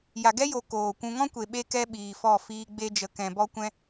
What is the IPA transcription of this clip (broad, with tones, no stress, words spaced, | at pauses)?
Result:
ja˨ɡɛ˦jo˨ koː˨kʷũ˧ ŋɔ̃˦kʷe˨ɓe˧ kɛ˦ɓiː˨fɔ˦˨ fiː˧ ɡ͡be˧d͡ʒə˨kɛ̃˨ bɔ˦kʷɛ̃˦